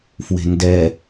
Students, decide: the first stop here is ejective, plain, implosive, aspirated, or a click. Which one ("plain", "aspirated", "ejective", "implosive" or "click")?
plain